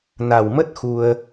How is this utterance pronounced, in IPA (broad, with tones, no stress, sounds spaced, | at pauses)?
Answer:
n a˨˩ w m ə˦˥ t̚ x u˧ ə̯